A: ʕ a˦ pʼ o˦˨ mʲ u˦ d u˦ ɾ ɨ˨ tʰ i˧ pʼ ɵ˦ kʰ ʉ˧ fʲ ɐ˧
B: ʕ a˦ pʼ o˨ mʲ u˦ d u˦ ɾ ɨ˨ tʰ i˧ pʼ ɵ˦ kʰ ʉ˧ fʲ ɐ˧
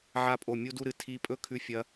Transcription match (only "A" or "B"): A